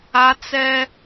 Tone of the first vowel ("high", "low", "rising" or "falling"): high